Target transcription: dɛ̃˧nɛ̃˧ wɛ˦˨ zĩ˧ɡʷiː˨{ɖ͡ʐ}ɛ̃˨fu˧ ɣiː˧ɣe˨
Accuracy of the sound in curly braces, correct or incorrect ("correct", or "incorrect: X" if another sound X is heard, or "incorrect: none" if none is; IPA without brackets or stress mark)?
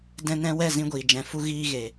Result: incorrect: d͡ʒ